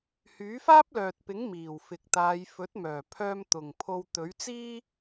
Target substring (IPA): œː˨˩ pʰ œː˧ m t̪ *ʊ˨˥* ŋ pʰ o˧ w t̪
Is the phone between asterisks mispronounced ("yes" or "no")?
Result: yes